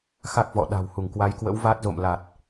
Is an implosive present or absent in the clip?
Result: present